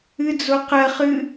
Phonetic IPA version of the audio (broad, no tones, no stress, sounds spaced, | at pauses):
ɨ d͡z o q ɜ χ ɨ